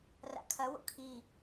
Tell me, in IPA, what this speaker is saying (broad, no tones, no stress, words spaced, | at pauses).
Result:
ra̰kʰɐwo̰ kʰi